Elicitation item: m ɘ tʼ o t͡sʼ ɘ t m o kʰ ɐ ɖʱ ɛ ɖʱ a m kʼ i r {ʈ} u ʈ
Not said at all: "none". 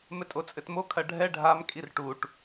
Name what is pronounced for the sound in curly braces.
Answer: ʈ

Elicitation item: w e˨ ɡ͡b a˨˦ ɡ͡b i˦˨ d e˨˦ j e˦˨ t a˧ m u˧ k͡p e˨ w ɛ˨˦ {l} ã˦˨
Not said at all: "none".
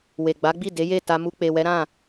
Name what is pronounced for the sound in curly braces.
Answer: ɾ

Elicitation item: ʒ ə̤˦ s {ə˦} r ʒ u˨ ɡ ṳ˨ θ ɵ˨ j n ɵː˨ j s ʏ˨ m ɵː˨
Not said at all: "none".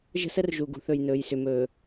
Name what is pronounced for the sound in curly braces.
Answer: ə˦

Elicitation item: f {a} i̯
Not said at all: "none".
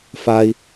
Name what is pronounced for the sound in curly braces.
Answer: a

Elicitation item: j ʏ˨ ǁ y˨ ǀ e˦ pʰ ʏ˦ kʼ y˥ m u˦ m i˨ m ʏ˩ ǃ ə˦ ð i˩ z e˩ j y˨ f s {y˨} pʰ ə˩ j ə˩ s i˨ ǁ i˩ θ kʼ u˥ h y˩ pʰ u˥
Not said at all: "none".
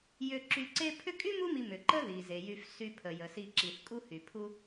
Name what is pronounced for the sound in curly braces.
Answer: y˨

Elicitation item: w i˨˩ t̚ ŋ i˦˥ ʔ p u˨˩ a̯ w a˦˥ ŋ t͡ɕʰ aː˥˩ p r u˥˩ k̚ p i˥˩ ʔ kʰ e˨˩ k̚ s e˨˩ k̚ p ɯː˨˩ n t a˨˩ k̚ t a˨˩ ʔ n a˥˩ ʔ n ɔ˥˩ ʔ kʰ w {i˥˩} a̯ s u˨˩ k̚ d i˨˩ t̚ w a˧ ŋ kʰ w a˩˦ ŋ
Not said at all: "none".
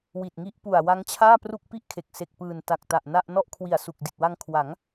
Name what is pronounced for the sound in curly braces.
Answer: i˨˩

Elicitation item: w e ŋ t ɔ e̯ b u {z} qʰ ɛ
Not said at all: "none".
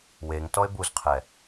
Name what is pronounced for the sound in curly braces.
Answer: z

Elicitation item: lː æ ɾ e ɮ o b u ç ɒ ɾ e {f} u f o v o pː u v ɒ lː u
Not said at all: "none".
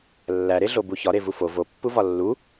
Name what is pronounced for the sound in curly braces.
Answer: v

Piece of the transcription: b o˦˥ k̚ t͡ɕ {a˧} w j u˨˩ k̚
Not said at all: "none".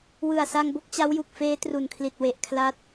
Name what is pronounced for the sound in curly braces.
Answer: a˦˥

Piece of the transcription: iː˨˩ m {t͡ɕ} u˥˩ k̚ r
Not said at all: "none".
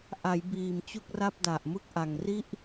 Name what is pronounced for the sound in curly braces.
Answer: t͡ɕ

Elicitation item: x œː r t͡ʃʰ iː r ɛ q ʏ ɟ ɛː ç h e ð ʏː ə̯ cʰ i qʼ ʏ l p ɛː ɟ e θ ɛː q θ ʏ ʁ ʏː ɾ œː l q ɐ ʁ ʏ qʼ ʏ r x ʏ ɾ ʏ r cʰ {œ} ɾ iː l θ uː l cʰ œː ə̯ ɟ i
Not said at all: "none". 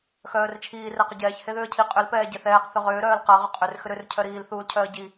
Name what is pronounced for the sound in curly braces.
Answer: œ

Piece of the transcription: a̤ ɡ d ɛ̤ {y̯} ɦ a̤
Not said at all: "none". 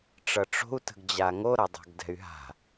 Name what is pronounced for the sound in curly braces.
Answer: y̯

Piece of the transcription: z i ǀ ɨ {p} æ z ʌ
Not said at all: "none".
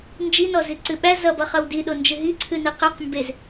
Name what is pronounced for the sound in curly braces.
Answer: ɓ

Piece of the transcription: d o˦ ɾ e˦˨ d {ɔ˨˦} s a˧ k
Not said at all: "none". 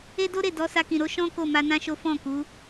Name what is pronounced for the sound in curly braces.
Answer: ɔ˨˦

